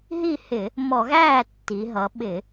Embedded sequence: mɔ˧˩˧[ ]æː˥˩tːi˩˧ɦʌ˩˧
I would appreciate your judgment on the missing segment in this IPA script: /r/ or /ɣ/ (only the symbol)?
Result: ɣ